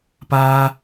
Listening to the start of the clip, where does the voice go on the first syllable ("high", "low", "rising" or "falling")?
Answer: high